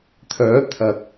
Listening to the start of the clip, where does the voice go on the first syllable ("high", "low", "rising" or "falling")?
rising